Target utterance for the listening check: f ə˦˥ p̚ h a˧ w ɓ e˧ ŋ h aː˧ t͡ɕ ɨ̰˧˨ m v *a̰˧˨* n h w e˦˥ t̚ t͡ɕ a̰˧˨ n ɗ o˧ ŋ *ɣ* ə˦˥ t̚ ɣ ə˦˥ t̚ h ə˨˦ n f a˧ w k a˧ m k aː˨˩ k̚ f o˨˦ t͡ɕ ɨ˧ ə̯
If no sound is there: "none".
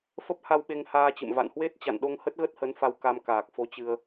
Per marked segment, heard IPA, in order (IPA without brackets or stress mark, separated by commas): a̰˧˨, h